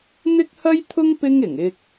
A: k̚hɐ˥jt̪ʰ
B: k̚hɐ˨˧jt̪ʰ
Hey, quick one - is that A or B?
A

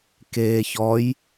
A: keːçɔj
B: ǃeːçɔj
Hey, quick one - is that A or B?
A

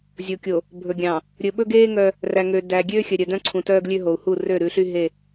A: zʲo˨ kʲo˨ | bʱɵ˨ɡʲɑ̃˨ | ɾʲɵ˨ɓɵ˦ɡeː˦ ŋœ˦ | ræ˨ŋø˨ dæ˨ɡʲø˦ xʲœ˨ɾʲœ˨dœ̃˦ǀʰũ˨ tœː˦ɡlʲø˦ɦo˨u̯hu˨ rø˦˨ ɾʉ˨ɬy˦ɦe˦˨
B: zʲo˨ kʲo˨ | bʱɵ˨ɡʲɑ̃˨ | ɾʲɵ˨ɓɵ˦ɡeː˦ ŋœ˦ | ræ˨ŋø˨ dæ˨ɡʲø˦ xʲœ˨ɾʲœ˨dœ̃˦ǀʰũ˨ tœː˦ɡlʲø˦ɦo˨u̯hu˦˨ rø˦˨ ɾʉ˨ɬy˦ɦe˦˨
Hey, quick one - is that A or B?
B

